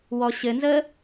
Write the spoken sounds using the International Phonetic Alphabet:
w ɔ ɕ ɘ n z ə

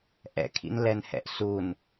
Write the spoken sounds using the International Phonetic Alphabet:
ʔ ɛ̰ kʰ ḭ n l ɛ n h ɛ̰ ʔ s u n

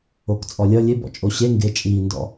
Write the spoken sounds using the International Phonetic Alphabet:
o k t͡sʼ ɔ lʲ ʌ lʲ e b ɔ̰ t͡ʃʼ o ɕ e ŋ ɡ e t͡ʃʼ iː n d ɔ̰

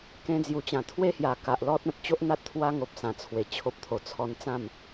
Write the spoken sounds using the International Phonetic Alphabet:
k ẽ˧ d͡z j u˨˩ t͡ɕ ã˨˩ t̪ʰ w e˦ h j a˨˩ k a˨ ʔ l ɔ˦ t̚ ã˨ t̚ t͡ɕ o˦ ʔ n̪ a˦ t̚ t̪ʰ w a˦ ŋ o˨ p̚ s ã˨˩ t͡sʰ w e˨˩ t͡ɕʰ o˦ p̚ t̪ʰ o˨˩ t͡sʰ ɔ˧ n t͡s ã˥˧ m

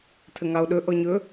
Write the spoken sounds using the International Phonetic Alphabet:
tʰ ə ŋ ɑ o̯ ɗ ɵ ʔ ɔ ɲ ɵ

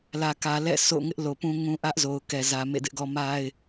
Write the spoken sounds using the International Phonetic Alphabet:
l ä˨ k ä˨ l ɛ̰˦˨ s o̰˦˨ ŋ ɪ˦ ʔ l o˨ p ũ˦ ŋ ũ˦ ʔ ä˦ ʔ z o˨ ʊ̯ k ɛ˨ z ä˨ m ḛ˦˨ d ɪ˦ ʔ ɡ ɔ˦ m a˦ ɪ̯

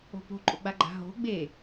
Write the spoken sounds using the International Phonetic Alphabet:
o̤ p o̤ ǃʼ o ɡ͡b a ɡ͡ǃ a̤ ɦ o̤ ɡ͡b e

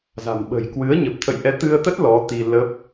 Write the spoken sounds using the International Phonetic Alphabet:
z a̤˨˩ m ɓ ə̤˨˩ j k w ɨ˨˦ ə̯ ɲ ə˨˩ p̚ t̪ʰ ə̰˧˨ j ʔ ɛ˨˦ t̪ ɨ˧ ə̯ t̪ ə˦˥ t̚ l ɔ˨˦ t̪ i˧ l ə˦˥ p̚

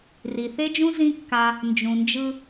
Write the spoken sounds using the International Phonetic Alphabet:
r i˨ θ e˦ d͡ʒ ũ˦ z ĩ˦ kː a˧ | n d͡ʒ ũ˨ n d͡ʒ ɯ˧

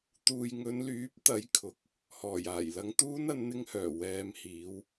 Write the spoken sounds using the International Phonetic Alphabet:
t̪ uː˨ j ŋ ɵ˨˧ n l yː˨˥ p̚ t̪ ɐ˨˥ j kʰ ʊ˨ k̚ | h ɔː˨˩ j aː˨˩ j l ɐ˧ ŋ t̪ uː˥ n ɐ˨˧ n n̪ ɪ˧ ŋ h œː˨˩ w ɛː˨ m h iː˨˧ w

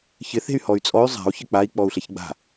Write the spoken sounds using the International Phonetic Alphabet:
ç ɪ θ e̤ y̯ h ɔ y̯ t͡sʼ ɔ y̯ zˤ a̤ u̯ ç ɪ k͡p a i̯ k͡p ɔ u̯ ɬ e ç ɡ͡b a̤

